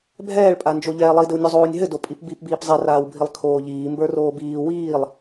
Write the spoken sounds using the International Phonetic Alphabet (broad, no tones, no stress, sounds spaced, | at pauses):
bʱ ɛː ɭ pʼ a n d͡ʒ o ʎ ɛː lˠ i d ɘ w nʲ o zˤ oː nʲ ɦ ɘ d o pʼ i p b i p b iː p zˤ ɛ r aː w bʱ i lˠ kʰ oː ʎ iː m b ə˞ r oː b iː w iː lˠ